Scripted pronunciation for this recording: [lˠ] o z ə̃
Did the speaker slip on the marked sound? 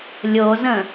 yes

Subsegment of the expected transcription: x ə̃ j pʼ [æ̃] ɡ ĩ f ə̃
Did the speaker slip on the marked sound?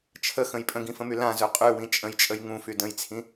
yes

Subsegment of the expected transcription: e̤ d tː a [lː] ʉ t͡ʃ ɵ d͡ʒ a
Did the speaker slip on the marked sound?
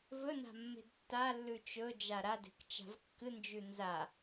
no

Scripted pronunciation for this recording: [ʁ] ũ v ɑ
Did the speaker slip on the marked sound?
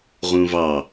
no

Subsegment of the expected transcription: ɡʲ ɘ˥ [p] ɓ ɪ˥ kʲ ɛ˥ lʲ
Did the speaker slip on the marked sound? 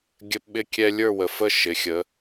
no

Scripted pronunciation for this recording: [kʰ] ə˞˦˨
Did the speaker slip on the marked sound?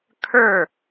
no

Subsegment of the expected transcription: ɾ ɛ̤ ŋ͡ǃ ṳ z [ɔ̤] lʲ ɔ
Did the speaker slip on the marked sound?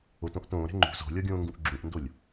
no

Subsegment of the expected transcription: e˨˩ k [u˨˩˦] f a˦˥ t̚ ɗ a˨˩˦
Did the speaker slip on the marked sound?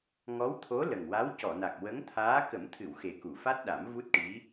yes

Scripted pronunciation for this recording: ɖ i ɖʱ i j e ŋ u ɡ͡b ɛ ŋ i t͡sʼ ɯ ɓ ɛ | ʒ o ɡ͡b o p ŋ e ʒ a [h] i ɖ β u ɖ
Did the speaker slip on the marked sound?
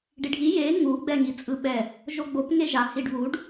no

